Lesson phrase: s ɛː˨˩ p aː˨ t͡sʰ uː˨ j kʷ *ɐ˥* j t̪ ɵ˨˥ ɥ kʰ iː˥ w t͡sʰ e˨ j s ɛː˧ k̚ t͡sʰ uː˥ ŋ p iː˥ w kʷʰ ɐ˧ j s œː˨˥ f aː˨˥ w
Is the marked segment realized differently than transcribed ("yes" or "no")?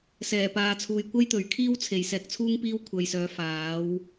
no